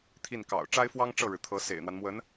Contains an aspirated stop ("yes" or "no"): yes